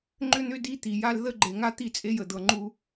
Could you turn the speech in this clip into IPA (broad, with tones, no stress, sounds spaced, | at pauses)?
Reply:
ŋ͡ǃ ʏ˦ n̪ ʏ˦ d i˦ t̪ i˨ j a˦ l ð ə˦ ɡ͡ǃ e˨ ŋ a˦ t̪ i˦˨ t͡sʼ e˦ j ə˨ d̪ ɤ˨ ŋ͡ǃ u˦